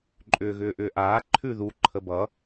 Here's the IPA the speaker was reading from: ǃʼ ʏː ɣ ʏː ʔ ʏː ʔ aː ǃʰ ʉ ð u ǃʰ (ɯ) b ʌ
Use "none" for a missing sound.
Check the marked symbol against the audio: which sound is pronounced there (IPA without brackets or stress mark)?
ə